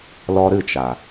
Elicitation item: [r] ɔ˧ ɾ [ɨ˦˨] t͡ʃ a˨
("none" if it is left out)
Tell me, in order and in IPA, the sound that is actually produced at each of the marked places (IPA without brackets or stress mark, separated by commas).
l, ɨ˦˨